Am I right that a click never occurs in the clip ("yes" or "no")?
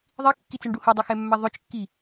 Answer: yes